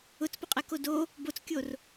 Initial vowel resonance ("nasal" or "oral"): oral